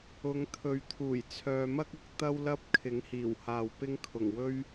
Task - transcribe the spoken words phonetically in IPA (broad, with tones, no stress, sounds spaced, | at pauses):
ʊ˨˧ ŋ t̪ʰ ɵ˨˧ ɥ t̪ʰ uː˨˩ j t͡sʰ œː˨ m ɐ˥ k̚ ʊ˧ k̚ t̪ ɐ˥ w l ɐ˥ p̚ kʰ ɪ˨˥ ŋ h iː˨˩ w h aː˨ w p ɪ˥ ŋ kʰ ʊ˨˩ ŋ w ɵ˥ ɥ